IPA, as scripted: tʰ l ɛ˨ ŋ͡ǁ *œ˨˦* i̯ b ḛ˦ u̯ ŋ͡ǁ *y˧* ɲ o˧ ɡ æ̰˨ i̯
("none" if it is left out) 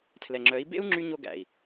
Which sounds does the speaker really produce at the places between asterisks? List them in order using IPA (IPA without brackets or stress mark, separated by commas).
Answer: œ˨˦, y˧